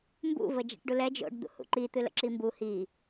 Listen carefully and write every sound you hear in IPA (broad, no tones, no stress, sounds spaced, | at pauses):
m b ṵ v ə d͡ʒ ɛ̰ ʈ ɖ u l ɛ d͡ʒ o̰ ɖ d̪ ṵ h ṵ ǃ i t̪ ɨ l ə̰ ǁ i m b u h i